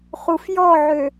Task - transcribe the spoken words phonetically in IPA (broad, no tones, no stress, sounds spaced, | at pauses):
χ u f j ɔ ʕ ø